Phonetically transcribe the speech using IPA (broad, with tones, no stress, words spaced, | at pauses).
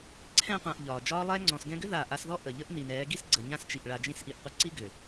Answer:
ǀʰɛ̃˧qʷã˨ʔ ʎɒː˨ d͡ʒɒː˦lˠɛː˦ ŋ͡ǀɔ̃˨sɡɛ̃˧ɡʏ˦ ða˦˨ ʔa˧sðɔ˦ ʔə˨ ʎə˦ʔni˨nɛː˨˦ɡi˦s ɡ͡ǀə˨ɲã˦st͡ʃi˨ʔ ɭa˨d͡ʒĩ˧sʔi˨ʔqʷə˧ ǀi˦ɡʏ˨